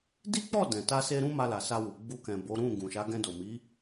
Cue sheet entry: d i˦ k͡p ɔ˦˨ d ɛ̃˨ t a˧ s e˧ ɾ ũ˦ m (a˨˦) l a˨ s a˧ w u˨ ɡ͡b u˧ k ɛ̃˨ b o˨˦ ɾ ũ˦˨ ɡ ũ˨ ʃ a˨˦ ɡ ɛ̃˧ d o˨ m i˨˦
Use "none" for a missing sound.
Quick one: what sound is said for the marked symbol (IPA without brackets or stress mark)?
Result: a˧